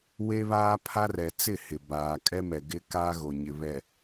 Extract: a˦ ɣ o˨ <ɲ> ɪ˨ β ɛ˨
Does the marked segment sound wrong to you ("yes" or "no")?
no